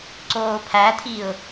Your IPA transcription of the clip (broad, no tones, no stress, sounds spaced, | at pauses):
ǀ oː pʰ æ tʰ i ʊ̯